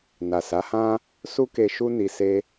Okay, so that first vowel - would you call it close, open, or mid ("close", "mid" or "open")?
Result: open